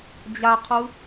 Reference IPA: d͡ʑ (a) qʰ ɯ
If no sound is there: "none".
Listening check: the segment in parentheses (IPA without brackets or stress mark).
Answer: a